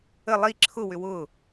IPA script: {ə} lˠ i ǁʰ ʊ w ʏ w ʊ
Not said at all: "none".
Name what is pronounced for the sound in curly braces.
ə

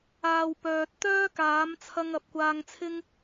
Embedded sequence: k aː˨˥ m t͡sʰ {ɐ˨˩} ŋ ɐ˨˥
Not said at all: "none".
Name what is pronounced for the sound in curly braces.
ɐ˧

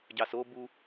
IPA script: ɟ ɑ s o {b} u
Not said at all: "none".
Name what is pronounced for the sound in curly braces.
b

